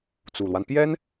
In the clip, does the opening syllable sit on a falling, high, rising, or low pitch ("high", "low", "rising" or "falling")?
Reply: low